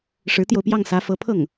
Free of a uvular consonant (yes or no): yes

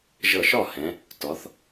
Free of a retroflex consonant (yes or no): yes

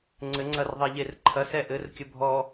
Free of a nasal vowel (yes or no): yes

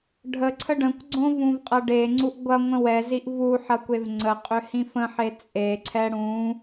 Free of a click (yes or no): no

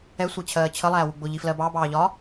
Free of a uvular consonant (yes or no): yes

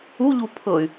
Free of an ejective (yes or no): yes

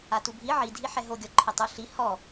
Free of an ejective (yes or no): yes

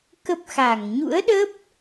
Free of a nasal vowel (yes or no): yes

